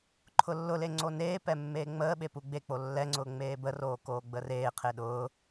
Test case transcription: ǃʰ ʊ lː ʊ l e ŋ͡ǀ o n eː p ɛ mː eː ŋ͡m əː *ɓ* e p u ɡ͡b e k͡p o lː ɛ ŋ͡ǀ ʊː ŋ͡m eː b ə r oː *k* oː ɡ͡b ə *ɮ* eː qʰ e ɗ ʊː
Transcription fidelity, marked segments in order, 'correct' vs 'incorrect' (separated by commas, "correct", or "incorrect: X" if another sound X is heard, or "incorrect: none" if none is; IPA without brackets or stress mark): correct, correct, incorrect: r